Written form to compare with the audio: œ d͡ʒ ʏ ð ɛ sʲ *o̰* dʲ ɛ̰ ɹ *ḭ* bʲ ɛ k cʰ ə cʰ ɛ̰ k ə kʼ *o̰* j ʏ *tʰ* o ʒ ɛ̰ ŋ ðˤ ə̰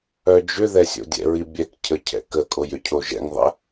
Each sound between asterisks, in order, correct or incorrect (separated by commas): correct, incorrect, incorrect, incorrect